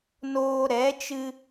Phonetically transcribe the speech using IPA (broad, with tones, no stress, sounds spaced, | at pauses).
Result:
n oː˧ ɾ ɛ˨˦ t͡ʃ ɨ˧